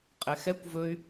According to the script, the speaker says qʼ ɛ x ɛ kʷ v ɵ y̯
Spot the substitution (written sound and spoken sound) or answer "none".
none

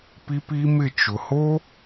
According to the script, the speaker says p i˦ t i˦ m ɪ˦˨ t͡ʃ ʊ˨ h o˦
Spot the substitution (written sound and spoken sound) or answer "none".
t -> p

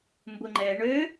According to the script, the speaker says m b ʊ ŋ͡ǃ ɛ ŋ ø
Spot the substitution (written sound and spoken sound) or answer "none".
ŋ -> ɳ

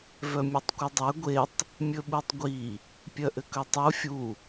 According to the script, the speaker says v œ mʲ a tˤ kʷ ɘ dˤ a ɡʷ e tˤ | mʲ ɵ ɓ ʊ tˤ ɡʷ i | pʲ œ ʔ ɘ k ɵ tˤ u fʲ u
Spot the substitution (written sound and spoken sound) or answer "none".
ʊ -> u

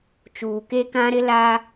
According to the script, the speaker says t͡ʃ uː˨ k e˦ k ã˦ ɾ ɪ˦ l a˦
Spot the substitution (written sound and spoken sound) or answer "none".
none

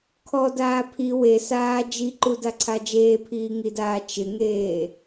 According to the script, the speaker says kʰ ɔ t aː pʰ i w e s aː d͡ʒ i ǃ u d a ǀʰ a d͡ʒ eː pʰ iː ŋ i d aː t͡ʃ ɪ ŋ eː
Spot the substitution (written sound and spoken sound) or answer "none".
t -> d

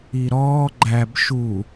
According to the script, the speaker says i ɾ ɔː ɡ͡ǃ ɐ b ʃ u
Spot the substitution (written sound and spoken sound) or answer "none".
ɐ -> æ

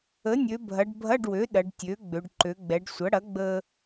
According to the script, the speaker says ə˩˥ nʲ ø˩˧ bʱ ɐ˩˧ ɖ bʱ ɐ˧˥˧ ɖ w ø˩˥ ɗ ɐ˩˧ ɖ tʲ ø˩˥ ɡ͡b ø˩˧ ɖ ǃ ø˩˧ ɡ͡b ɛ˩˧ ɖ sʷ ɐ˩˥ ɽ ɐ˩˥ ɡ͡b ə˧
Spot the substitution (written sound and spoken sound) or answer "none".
none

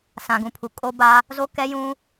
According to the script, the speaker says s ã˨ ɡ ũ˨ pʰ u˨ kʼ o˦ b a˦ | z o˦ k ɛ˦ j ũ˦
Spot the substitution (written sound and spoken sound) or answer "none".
none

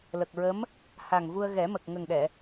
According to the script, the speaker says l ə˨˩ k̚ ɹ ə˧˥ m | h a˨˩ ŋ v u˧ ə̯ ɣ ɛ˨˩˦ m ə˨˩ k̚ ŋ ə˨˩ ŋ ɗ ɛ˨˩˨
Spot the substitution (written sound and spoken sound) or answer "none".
none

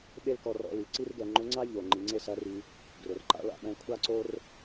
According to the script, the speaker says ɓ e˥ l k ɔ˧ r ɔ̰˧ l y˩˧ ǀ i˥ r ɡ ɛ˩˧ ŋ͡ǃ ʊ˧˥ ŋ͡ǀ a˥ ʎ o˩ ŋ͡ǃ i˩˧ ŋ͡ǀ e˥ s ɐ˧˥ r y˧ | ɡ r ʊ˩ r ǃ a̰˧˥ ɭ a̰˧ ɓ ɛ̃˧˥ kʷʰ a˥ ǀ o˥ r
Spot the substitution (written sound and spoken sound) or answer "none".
none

